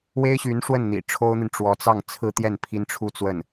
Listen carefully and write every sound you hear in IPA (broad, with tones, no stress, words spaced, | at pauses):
we˥ɪ̯ɕy˧˥nʂwə˥˩n n̪ḭ˨˩ ʈ͡ʂʰo˥ʊ̯n̪i˨n ʈ͡ʂwɔ˧˥t͡sɑ˥˩ŋ t͡sʰɹ̩˥t̪jɛ˥˩n pʰi˥n ʈ͡ʂʰu˥˧t͡swə˥˩n